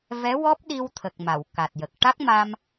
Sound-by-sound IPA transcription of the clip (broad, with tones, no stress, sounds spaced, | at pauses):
v ɛ˧˥ w ɔ˦˥ p̚ ɗ i˧ w t̪ʰ ə˨˩ k̚ m a˨˩˨ w k a˨˩ t̚ j ə˨˩ k̚ ʈ a˦˥ k̚ m a˧ m